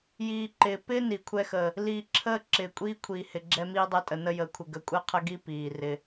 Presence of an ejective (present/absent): present